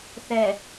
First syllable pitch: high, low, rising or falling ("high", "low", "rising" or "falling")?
low